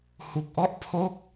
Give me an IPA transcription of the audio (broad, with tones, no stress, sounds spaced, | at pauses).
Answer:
h u˨˩ k̚ ʔ ɔ˥˩ ʔ pʰ o˥˩ k̚